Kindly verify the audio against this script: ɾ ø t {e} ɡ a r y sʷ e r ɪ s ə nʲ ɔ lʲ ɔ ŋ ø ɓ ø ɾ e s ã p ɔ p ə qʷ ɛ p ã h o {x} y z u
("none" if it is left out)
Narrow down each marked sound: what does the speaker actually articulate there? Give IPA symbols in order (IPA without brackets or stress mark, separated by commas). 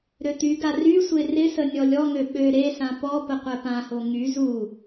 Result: y, ŋ